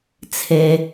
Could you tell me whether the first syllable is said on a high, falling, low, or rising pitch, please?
low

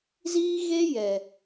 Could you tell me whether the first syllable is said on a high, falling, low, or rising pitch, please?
high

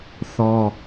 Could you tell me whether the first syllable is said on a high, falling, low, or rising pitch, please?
high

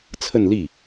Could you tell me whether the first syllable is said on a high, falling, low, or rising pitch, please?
falling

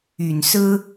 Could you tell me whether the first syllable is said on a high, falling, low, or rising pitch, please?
low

